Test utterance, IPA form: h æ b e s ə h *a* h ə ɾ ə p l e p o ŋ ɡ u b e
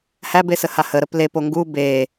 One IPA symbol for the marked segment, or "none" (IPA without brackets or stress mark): a